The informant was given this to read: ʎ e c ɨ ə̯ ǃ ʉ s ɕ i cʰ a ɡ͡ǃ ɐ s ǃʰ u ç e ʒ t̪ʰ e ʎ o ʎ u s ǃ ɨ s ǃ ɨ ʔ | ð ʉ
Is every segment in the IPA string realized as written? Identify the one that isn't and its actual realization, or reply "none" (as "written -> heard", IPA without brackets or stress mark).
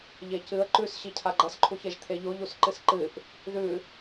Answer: none